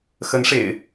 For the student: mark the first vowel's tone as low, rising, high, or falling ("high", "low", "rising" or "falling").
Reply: rising